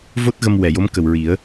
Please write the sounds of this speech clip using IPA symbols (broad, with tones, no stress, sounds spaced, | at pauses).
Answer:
v o˦˥ t̚ ɣ ə˧ m w ɛ˨˩˨ j o˧˥ m k ə˨˩ w ɹ i˨˩˦ ə̯